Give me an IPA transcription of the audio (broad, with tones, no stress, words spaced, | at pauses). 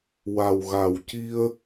wa˨˩wɣa˨˩w ci˧ə̯